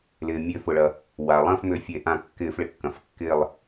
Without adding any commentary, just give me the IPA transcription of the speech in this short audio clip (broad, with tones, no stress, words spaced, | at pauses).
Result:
lɪː˩ mʲø˧˩˧fʊ˩ɭɐ˩ | wa˩lˠɐ̃˥˨fmʏ˧˩˧ fʲe˧˩˧ ʔã˧˩˧kːɪː˧˩˧f ɭɪ˩kːɐ̃˩fkːɪː˥˨lˠ